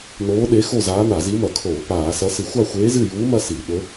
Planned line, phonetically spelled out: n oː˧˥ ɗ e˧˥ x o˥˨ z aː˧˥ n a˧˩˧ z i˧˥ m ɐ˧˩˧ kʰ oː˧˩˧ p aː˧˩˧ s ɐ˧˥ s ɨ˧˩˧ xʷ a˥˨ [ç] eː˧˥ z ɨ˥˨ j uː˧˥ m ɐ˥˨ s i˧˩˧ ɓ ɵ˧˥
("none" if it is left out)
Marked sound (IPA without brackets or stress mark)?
xʷ